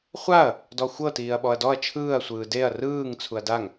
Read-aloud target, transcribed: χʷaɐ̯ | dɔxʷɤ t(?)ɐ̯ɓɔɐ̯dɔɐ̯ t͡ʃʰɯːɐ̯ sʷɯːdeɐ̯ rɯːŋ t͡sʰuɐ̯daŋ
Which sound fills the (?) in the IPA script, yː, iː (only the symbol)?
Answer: iː